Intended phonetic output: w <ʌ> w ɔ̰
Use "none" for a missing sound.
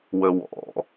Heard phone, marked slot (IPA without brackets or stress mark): ə